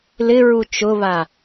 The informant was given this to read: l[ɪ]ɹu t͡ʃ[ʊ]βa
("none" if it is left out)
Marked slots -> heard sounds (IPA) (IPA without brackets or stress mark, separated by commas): ɪ, ʊ